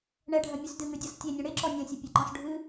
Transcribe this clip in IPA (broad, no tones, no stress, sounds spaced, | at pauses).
ɳ ɛ ɖʱ ɐ mʲ ʉ s d ɨ ŋ ʉ dʲ ɔ s tʲ e nʲ ɐ̃ ɽ e ǁ ɔ nʲ ɐ̃ sʲ ɐ pʲ ɐ ǃ ɔ̃ s ɖʱ ɨ